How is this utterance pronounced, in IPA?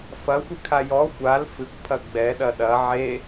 fɐxʷɨkʰa jɔ xʷal fɨkʷpʰɐ ɡ͡bɛɗɐ ɗɐ ʕe

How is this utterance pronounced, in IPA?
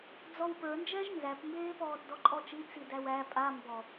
d͡zɔwpə˞nd͡ʒɛʒ nzæpmbeːpɔːt dɔǃʼɔt͡ʃi t͡sidæwæ pʼa mbɔ

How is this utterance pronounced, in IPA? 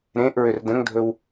ɾẽʔɹʏr də̃ŋdʱɵw

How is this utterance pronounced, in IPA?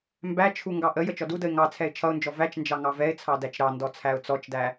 mbæt͡ʃʰu ŋɡɑʔəjə t͡ʃɔdudəɪ̯ ŋɑ t͡sʰɛɪ̯t͡ʃʰʌʊ̯nd͡ʒɔ væt͡ʃnd͡ʒɑ ŋɑvɛɪ̯t͡sʰɑ dæt͡ʃɾɑndɔ t͡sʰæʊ̯t͡sɔt͡ʃdæ

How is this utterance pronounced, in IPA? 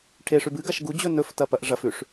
ʈʰeʂʉb ɨɡaʃ ɡud͡ʑɵ nɵftɐpɐʔ ʐɐfʉʂ

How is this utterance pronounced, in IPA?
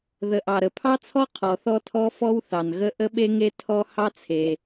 ðə˩ ʔɑ˩ɾə˩pʰɑ˥t͡sʰɔ˥ qʰɔ˩θɔ˥tʰɔ˥ fɔ˥wθɑ˩nɣə˥ ʔə˥ɓe˥ŋe˥ tʰɔ˥ hɑ˥t͡sʰe˩

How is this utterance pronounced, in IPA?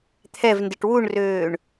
t̪ʰɛvndɪʈ wuɳrøːɳ

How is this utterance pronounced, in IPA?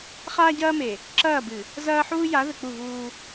χaː˦ɟɐː˦me˨ | ǁɐː˦˨bɨ˨ | zɐː˦ħuː˦ja˨˦ ðɘ˨k͡pu˦˨vuː˦

